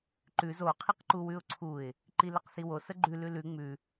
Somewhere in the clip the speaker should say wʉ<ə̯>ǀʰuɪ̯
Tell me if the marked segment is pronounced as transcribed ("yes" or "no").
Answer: no